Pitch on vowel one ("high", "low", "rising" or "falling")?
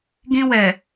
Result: high